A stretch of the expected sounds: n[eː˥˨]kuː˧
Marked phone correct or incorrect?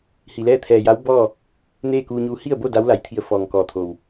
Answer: correct